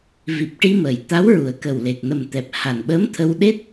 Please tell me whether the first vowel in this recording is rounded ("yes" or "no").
no